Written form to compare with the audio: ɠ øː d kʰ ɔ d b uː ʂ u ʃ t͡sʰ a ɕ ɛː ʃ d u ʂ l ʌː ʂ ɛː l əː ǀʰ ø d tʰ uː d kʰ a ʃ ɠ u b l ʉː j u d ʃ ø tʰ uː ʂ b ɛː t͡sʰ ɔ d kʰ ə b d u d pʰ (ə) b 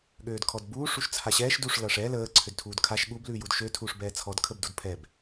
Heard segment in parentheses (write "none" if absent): ɛ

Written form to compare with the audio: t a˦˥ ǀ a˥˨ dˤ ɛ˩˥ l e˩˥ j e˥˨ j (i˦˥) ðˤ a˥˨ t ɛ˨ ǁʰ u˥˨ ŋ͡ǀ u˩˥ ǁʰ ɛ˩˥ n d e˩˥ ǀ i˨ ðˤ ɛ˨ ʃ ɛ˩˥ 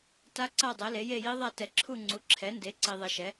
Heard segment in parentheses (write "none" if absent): i˦˥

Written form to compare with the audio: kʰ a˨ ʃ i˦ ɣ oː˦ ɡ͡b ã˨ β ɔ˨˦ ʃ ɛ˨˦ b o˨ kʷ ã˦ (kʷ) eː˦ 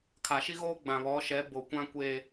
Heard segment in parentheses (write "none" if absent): kʷ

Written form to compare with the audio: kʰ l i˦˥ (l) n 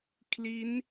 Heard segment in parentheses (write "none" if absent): none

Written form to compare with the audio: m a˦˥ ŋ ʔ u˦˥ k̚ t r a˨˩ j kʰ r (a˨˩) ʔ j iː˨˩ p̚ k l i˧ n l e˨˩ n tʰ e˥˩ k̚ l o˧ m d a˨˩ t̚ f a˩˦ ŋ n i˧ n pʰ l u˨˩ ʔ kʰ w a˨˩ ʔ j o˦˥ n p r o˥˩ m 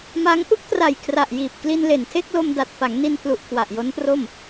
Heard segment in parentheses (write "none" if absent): a˨˩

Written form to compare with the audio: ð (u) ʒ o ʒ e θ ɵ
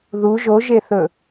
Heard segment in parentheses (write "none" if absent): u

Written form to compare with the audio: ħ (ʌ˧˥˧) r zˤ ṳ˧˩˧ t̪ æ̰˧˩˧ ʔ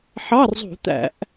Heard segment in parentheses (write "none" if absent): ɑ˧˥˧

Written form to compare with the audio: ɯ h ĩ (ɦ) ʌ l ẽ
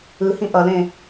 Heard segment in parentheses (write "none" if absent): ʔ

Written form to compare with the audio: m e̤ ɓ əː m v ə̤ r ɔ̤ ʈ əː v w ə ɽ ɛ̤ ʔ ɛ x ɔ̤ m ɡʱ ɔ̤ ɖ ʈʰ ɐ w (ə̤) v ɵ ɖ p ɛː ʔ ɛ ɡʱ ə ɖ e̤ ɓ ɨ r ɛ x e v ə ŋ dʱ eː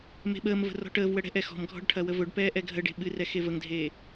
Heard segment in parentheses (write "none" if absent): ə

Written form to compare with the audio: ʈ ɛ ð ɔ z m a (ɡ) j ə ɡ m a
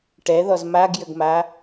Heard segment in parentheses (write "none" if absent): ɡ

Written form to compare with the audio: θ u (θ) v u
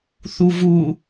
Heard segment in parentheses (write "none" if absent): none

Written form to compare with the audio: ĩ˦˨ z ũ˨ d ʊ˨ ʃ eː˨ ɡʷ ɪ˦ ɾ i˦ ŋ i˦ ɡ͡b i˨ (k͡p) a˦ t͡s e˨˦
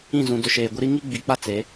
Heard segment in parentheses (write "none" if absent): k͡p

